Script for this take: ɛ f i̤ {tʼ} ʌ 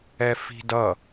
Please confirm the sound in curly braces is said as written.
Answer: no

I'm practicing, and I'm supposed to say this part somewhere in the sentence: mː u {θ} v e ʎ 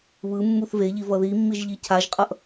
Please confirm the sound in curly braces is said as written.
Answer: yes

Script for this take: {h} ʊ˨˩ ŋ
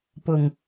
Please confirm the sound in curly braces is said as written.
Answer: no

